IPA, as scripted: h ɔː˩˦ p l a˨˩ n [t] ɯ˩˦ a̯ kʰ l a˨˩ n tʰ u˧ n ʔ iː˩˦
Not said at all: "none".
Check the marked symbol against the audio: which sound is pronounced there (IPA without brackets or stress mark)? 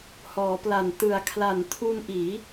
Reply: t